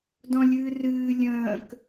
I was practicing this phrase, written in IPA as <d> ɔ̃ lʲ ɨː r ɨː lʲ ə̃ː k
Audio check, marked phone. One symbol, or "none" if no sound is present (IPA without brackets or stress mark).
d